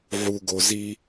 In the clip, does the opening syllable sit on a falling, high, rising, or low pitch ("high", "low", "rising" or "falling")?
low